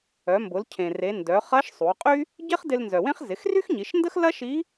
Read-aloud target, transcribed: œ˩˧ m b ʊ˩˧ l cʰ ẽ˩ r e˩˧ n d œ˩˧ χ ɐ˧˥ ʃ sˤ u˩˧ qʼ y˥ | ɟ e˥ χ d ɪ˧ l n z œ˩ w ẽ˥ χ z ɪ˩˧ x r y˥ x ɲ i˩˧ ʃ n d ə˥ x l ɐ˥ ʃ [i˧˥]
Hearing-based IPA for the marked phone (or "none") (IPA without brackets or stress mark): i˧˥